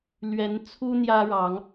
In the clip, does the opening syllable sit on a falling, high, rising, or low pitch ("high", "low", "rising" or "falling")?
rising